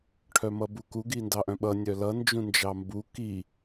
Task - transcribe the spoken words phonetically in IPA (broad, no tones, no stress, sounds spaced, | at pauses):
ʈʰ œ m ʌ b u k u ɡ i n d ɑ ʔ œ̃ ɓ ʌ nʲ œ l ʌ n d͡ʒ ũ n d͡ʒ ɑ m b u k i